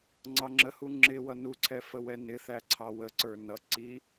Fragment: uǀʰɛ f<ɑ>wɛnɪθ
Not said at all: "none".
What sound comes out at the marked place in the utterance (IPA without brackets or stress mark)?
ə